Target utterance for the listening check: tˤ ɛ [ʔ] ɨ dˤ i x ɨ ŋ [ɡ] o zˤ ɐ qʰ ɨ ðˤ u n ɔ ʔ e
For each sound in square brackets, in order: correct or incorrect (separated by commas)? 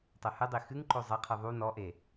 incorrect, incorrect